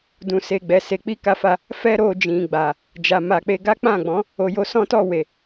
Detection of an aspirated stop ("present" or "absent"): absent